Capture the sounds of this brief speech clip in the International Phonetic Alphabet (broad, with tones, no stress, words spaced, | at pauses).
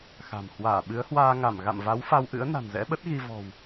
xa̤˨˩m hwaː˧˩ ɓɨ˨˦ə̯hwaː˧ŋa˧˩m ɣa̰˧˨mva˨˦w fa˧wʔɨ̰˧˥ə̯ na̤˨˩nzɛ̰˧˥ɓə˦˥t̚ ɣi˧ vɔ̤˨˩w